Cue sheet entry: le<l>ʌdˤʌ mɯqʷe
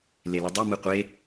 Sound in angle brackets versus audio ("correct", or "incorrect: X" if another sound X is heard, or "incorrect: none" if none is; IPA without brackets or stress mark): correct